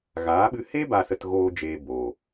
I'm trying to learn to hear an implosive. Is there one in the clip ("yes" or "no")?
yes